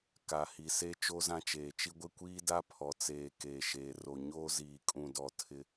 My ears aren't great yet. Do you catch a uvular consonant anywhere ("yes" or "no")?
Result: no